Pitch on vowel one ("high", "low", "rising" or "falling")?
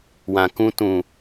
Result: low